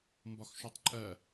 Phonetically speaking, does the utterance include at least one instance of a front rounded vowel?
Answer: no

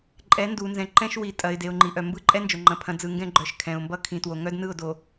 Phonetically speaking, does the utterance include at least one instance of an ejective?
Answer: yes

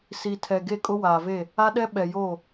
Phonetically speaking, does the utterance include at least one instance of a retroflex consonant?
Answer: no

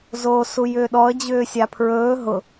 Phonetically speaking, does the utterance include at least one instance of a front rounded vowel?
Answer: yes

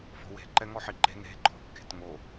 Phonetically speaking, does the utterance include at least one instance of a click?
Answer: yes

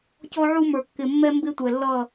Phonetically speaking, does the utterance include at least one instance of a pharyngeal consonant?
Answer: yes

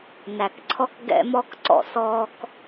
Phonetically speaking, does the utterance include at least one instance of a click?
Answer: yes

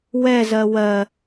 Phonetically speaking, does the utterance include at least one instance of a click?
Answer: no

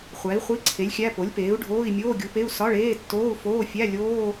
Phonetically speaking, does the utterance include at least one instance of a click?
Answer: yes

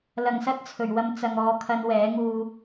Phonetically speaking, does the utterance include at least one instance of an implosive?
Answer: no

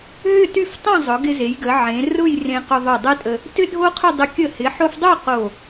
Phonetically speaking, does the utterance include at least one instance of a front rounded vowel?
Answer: yes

